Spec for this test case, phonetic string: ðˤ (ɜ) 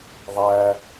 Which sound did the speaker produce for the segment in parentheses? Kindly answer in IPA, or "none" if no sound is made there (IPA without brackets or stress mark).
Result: æ